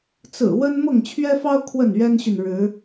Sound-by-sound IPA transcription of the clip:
t͡s ɹ̩˨˩ w ə˦ n m ɤ˥˨ ŋ t͡ɕʰ ɥ ɛ˦ f ɑ˦ ʊ̯ kʰ w ə˥˨ n ɥ ɛ˦ n ɕ y˨ n ɻ ɻ̩˨˦

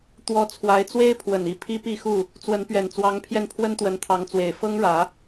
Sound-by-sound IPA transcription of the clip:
t̪ w ɔ˨˦ t͡sʰ w a˨˦ ɪ̯ t͡s w e˦ ɪ̯ pʰ w ə˨˩ n i˥˨ pʰ i˦ p i˥˨ x u˥˨ | t͡s w ə˨˦ n p ɥ ɛ˨˩ n t͡s w ɑ˨˦ ŋ pʰ j ɛ˧ n pʰ w ə˦ n t̪ w ə˨˦ n t̪ʰ ɑ˨˦ ŋ t͡s w e˨˩ ɪ̯ f ɤ˦ ŋ ɻ ä˨˦

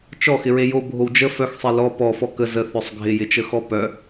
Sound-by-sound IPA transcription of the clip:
t͡ʃ ɔ x ɪ ɹ e j o bʱ o w d͡ʒ ə f œ x sˤ e l ɔ p ɔ f ɔ k ə z ə θ œ sˤ ɡʱ ɪ j ɪ t͡ʃ ə x ɔ p œ

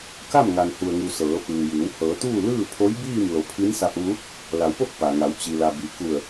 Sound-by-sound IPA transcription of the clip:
k a˥˨ m ŋ a˩ n h u˩ ə̯ ŋ u˩ s ɤː˩˧ f ɯː˩ j ɯː˩˧ w h ɤː˩˧ t̪ uː˥˨ l ɯː˥˨ pʰ o˧˥ j b iː˥˨ m l o˩˧ pʰ i˧˥ n s a˧ p̚ ʋ u˧˥ | l a˩˧ w p o˥˨ k̚ p a˩ ŋ a˩˧ w t͡ɕ i˩ l a˩ b i˩ k u˧˩ ə̯

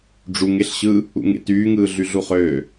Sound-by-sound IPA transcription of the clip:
ɖ͡ʐ u ŋ e ɬ ɕ ɯː | ṵ ŋ ḛ t yː ŋ ɯː ɮ y ɮ u χ øː

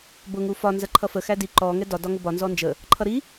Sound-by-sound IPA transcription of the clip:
b ʊ ŋ u f ɒ n z ɜ ǃʰ ʌ f ə x æ d i ǃ ɔ ŋ ɛ d ɒ d ɒ ŋ ʊ b ɒ n z ɔ n d͡ʒ ə | ǃʰ ʌ ɾ i

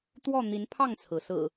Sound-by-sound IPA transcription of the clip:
t̪ w ɔ˥˨ n̪ i˨˦ n pʰ ɑ˥˨ ŋ t͡sʰ ɹ̩˩ s ɹ̩˨˩

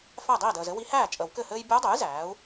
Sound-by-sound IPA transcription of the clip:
f æ˥˩ dˤ iː˥˩ d əː˨ z ɘ˥ w i˧˥ h æː˥˩ t͡ʃʼ ə˨˩˦ w k ɘ˥˩ h ɘː˥ j bʲ ɔ˧˥ dˤ œ˩˥ j z æː˩˥ u̯

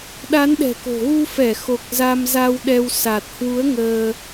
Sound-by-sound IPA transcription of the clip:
ɗ a˨˦ n ɗ ɛ̤˨˩ k o̤˨˩ ɣ u˧ f ɛ˧˩ x o˨˩ k̚ z a˧ m z a˧ w ɗ ɛ˧ w s a˨˩ t̚ h w u˨˦ ə̯ ŋ əː˧

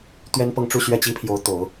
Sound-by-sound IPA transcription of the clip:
t̪ ɥ ɛ˥ n p ɤ˥˧ ŋ ʈ͡ʂ u˥˧ ɕ ɥ ɛ˥˩ t͡ɕ i˥ pʰ j o˧˥ ʊ̯ t̪ o˨˩˦ ʊ̯

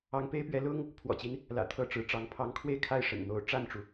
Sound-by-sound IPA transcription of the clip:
ɑ˧˥ ŋ p e˥ ɪ̯ p ɥ ɛ˧˥ l ʊ˥ ŋ | pʰ w ɔ̰˨˩ t͡ɕ i˦ n | l ä̰˨˩ t̪ʰ ɤ˥˩ ʈ͡ʂ ɻ̩˧˥ ʈ͡ʂ ɑ˧˥ ŋ pʰ ɑ˧˥ ŋ kʰ w e˥˧ ɪ̯ kʰ a˥˩ ɪ̯ ʂ ə̰˨˩ n n̪ o˧˥ ʊ̯ ʈ͡ʂ a˥˩ n ʈ͡ʂ u˩

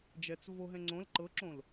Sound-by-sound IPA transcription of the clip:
d͡ʒ ɛ t͡s v o ɦ ɛ̃ ŋ͡ǀ õ l ǃ ɤ ǁ õ l

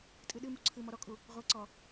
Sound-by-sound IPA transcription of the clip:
tʼ ɨ ɗ ɨ m u ǀʰ ɨ m ɔ ɾ ɔ kʼ u | ʁʷ ɛ ǀ ɔ

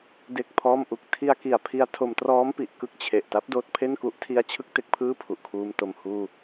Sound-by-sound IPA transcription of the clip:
d e˥˩ k̚ pʰ ɔː˥˩ m ʔ u˥˩ k̚ tʰ i˧ a̯ k i˨˩ a̯ pʰ i˧ a̯ tʰ o˧ m t r ɔː˦˥ m p i˨˩ ʔ k ɯ˦˥ k̚ t͡ɕʰ e˨˩ ʔ t a˦˥ p̚ d oː˦˥ t̚ pʰ e˥˩ n k u˦˥ ʔ tʰ i˦˥ a̯ t͡ɕʰ ɯ˦˥ k̚ t e˦˥ k̚ pʰ ɯː˥˩ pʰ u˨˩ ʔ kʰ uː˧ m t o˨˩ m h uː˧

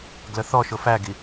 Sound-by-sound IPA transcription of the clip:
ɡ l ə θ ɔ ʃ ʊ f æ ɡ i

